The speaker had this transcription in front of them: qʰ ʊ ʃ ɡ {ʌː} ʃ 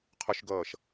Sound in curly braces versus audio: correct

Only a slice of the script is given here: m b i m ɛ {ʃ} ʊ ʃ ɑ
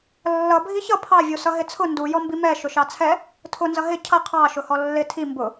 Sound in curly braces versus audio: correct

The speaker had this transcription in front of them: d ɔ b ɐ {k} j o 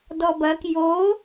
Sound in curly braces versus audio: correct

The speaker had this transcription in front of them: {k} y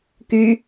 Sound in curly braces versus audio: correct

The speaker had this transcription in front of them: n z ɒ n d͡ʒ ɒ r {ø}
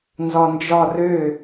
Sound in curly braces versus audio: correct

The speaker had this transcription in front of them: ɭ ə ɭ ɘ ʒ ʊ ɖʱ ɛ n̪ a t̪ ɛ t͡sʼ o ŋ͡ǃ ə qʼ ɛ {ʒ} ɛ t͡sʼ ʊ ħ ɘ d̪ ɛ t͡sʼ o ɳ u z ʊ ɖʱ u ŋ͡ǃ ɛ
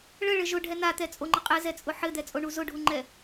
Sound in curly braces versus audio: incorrect: z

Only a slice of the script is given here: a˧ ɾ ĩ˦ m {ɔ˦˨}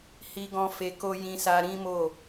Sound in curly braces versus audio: incorrect: o˦˨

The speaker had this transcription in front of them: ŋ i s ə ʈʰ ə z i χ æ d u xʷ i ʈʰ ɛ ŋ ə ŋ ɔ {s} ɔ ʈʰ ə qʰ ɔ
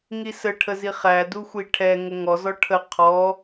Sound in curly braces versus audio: incorrect: z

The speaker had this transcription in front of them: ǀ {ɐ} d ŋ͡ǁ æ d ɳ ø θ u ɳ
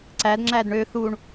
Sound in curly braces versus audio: incorrect: æ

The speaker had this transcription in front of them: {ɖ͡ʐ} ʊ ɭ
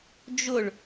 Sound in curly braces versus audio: incorrect: d͡ʒ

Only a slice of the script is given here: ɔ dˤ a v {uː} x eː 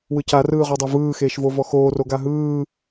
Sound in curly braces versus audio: incorrect: ɯː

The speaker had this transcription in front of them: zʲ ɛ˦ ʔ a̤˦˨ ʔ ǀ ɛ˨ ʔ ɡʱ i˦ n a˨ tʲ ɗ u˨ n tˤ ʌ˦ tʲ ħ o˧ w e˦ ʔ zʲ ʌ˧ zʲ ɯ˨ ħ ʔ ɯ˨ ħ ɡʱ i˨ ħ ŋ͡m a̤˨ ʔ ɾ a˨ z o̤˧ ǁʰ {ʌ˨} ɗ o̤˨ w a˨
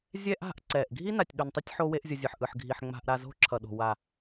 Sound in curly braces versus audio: correct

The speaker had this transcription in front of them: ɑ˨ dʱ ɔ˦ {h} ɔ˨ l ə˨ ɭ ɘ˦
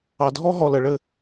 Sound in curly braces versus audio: incorrect: ɦ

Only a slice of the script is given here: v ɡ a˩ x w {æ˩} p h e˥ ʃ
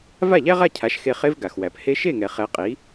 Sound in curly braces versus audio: correct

